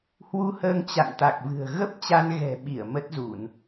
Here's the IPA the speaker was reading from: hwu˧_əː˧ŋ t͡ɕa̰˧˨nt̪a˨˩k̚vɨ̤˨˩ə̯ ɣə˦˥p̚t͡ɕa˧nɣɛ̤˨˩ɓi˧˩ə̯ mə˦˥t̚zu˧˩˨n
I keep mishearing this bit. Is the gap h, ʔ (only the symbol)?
h